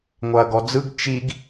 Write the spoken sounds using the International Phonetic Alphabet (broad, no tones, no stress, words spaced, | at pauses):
ŋʷaɐ̯ɡɔd͡zɯɡ t͡ʃiɡ